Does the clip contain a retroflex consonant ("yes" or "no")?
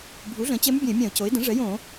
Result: yes